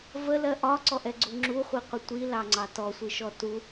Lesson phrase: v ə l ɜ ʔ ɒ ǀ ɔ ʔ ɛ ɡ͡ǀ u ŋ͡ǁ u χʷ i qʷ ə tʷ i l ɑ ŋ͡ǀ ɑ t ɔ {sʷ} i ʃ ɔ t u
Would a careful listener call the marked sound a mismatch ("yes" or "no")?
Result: no